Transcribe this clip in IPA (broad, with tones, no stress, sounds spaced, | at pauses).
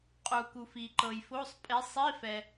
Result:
qʼ u˩ k u˩ f i˩ ǃ ɤ˩ j f o˧˥˧ sˤ pʼ e˨˦ sˤ i˧˥˧ f ɛ˩